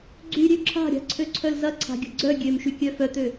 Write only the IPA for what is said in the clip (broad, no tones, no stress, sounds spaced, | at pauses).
ɡ͡ǀ y ɾʲ ø ǁʰ a̤ ɾʲ a̤ ǀʰ ø ǀʰ œ l z ɐ ǀʰ a̤ ɡʲ ə̤ ɡ͡ǀ œ ɡʲ ø m ʃ y kʲ œ f œ t̪ ø